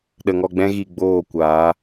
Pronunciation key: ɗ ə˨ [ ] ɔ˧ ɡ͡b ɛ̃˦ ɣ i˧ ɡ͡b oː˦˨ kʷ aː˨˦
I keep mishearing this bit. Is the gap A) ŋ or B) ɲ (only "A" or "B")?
A